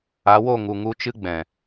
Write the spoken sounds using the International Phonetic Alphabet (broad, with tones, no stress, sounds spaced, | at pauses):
a˨˦ w o˦˨ ŋ u˨ ŋ u˧ t͡ʃ ɨ˦ ɡ͡b ɛ̃˨